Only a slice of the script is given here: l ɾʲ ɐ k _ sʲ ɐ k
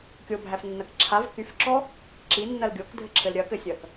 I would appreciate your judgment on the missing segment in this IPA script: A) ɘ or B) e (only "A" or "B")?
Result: A